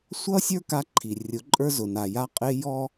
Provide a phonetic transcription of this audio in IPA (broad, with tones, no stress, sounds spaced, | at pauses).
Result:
sʷ ʌ˦ sʲ ə˞˦ k a˦ ǃʰ i˨ rʲ ʊ˨˦ ǃʼ ə˞˦ z ʊ˨ n a˨ j a˦ qʼ ɪ˦ j ɔ˦